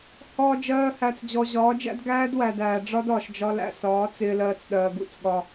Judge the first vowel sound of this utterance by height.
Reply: low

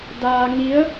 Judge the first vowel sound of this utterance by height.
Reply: low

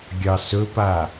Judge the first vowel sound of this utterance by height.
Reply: low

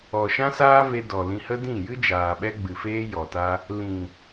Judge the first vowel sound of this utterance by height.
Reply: mid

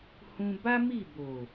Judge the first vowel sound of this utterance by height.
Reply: high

